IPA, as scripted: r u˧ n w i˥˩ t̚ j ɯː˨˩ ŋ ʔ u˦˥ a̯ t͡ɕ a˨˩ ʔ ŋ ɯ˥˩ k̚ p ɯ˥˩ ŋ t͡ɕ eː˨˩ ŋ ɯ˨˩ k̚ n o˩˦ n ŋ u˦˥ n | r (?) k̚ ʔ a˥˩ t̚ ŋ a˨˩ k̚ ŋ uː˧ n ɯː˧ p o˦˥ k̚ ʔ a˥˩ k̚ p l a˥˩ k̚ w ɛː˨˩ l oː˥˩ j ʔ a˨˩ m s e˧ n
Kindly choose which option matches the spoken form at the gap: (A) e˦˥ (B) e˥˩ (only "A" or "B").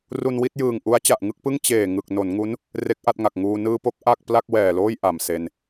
A